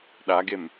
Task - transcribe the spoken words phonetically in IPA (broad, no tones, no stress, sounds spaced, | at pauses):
ɗ a ɡ e m